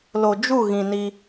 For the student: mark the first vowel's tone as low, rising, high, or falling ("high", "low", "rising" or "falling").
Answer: low